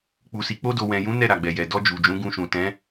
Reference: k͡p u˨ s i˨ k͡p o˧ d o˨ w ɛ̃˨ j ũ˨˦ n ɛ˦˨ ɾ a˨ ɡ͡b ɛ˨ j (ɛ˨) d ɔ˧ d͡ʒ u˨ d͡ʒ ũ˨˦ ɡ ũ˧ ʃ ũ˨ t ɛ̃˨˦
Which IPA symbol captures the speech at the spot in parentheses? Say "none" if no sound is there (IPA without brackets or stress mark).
ɛ˨